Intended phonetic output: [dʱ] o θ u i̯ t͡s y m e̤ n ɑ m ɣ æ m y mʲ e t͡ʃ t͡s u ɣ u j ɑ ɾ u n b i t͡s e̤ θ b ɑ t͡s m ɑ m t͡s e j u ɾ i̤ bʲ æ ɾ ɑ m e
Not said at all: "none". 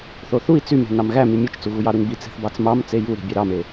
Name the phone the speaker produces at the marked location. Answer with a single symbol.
θ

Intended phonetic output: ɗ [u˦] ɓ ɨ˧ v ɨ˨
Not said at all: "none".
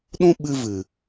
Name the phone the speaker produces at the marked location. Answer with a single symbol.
ũ˦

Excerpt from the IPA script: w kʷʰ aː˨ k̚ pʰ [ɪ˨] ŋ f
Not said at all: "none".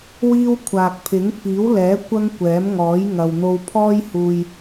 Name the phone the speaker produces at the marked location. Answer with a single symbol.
ɪ˨˥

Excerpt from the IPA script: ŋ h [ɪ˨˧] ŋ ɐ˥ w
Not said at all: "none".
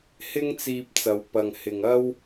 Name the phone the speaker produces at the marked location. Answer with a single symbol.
ɪ˨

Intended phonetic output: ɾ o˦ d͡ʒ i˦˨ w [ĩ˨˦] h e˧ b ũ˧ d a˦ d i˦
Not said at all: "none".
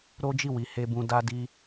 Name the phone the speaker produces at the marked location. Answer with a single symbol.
i˨˦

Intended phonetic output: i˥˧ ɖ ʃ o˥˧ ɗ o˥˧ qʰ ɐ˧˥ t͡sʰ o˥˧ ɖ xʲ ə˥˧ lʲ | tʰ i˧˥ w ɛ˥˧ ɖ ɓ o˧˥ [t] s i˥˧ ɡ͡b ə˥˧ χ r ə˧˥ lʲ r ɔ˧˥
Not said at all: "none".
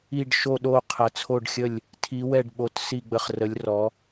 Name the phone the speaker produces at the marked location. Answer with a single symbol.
t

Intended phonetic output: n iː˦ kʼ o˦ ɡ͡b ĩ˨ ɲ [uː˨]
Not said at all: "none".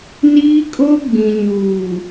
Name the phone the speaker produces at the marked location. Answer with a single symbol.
uː˨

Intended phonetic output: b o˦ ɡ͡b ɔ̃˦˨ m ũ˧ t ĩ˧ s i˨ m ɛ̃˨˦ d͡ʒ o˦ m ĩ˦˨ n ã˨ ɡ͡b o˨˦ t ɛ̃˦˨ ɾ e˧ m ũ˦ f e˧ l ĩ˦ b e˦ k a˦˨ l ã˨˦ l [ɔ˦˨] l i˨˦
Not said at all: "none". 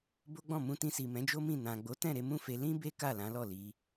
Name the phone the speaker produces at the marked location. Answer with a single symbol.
ɔ˦˨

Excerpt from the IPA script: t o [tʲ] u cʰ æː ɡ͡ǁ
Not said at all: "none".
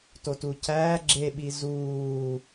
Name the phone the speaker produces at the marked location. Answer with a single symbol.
t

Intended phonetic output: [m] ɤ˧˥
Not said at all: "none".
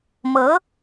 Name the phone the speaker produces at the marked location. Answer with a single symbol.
m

